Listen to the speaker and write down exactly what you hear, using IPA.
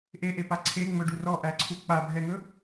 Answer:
ʔ e ʔ e p a ǀʰ e ŋ͡m ɵ ɖ u r ɔ ʔ æ ǀʰ u k͡p a bʱ ɛ ŋ ɵ

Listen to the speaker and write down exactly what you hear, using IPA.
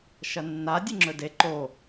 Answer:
ʃ ɐ nː a dʲ ɨ ŋ͡ǁ ɵ d e ǃ o

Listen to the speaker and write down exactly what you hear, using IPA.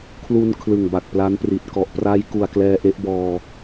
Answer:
kʰ l u˧ n kʰ l ɯ˨˩ ŋ b a˨˩ k̚ p l a˦˥ n p r i˨˩ t̚ k ɔ˨˩ ʔ p r a˦˥ j k u˨˩ a̯ k l ɛː˧ ʔ e˦˥ ʔ b ɔː˧

